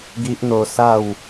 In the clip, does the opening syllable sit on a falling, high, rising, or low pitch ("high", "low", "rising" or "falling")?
high